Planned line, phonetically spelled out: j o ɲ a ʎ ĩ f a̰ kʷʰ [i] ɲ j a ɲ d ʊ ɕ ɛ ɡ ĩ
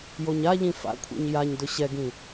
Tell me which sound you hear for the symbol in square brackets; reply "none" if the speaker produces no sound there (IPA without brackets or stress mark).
ḭ